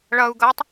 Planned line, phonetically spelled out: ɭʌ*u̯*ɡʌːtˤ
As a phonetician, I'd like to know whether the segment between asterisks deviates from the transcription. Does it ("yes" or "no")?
no